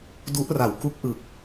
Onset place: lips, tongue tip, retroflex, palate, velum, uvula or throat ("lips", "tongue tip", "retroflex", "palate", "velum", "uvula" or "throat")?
tongue tip